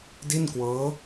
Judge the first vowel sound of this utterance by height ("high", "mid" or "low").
high